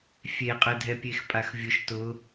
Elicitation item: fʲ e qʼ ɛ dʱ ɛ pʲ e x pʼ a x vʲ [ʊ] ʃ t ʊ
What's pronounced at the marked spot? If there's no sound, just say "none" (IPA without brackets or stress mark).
ʊ